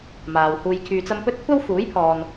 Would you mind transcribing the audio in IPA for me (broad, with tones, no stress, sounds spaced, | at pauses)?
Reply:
m aː˨ w h uː˧ j kʰ yː˧ t͡s ɐ˥ m p ɵ˥ t̚ kʷʰ ɐ˥ w f uː˨˥ j pʰ ɔː˨ n